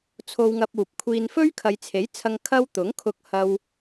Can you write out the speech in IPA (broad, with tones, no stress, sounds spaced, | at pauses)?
t͡sʰ o˧ w ŋ ɐ˧ p̚ uː˨ p̚ kʷʰ iː˧ n f ɵ˥ ɥ kʰ ɐ˨˧ j t͡sʰ e˨˥ j t͡sʰ ɐ˧ ŋ kʰ ɐ˧ w t̪ ʊ˨˥ ŋ kʰ ʊ˧ k̚ h ɐ˧ w